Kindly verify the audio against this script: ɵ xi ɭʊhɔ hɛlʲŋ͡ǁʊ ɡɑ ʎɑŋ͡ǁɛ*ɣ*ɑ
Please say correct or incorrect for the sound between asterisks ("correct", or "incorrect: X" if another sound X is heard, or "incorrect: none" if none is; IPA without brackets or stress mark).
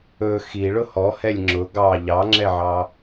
incorrect: ʕ